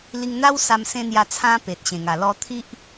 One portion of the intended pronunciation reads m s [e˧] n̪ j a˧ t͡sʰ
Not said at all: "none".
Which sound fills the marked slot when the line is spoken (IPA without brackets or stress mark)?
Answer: ẽ˧